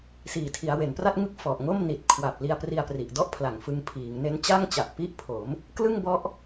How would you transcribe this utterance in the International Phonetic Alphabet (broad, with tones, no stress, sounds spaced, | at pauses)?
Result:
s iː˨˩ tʰ i˩˦ a̯ w e˩˦ n p r a˥˩ t̚ ŋ ɯ˥˩ k̚ f ɔ˨˩ ʔ ŋ o˥˩ m n i˨˩ t̚ kʰ w a˨˩ p̚ l i˧ a̯ p r i˧ a̯ p r i˨˩ ʔ d ɔ˥˩ ʔ pʰ l a˨˩ ŋ f ɯ˧ ŋ pʰ iː˩˦ ŋ n e˦˥ n t͡ɕ a˥˩ ŋ t͡ɕ a˨˩ ʔ p i˦˥ ʔ pʰ o˩˦ m | k l ɯ˥˩ ŋ b ɔ˦˥ ʔ